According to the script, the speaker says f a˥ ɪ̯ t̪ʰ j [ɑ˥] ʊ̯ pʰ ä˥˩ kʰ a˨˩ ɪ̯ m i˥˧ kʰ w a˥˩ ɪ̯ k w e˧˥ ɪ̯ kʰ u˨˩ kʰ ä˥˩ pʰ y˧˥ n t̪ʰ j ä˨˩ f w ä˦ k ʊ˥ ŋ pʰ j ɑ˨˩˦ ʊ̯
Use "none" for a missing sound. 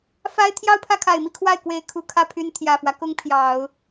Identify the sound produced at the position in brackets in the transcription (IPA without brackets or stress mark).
ɑ˥˧